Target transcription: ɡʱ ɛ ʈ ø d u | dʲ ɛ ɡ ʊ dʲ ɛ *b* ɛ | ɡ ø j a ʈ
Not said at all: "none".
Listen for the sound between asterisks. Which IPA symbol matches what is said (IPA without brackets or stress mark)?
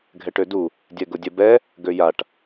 b